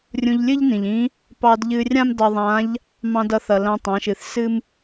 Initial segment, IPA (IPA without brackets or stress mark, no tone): rʲ